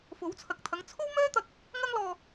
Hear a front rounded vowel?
yes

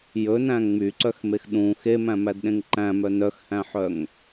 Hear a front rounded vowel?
yes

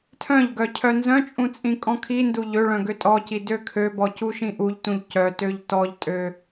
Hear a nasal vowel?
yes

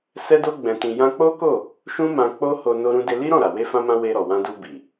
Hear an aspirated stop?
no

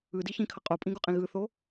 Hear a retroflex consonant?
no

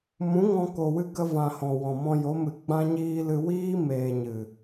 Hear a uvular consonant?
no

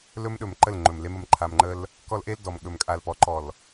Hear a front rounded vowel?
no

